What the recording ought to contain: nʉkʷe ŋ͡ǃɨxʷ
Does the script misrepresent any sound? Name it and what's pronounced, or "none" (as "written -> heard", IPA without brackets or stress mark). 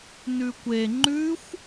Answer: ɨ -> ʉ